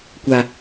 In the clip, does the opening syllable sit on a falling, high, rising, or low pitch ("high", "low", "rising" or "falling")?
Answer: low